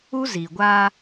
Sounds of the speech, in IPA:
u˦zi˨ɡʷaː˦

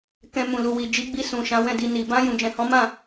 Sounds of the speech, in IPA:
kɛ̃˧ mũ˨lu˨ wi˨d͡ʒi˨˦ɡ͡bi˧ sũ˨ʃã˨˦ wɛ̃˦˨di˧ni˨ bã˧ jũ˨ d͡ʒɛ̃˨hɔ̃˨˦mã˦˨

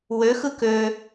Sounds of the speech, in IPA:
wøxɯ kø

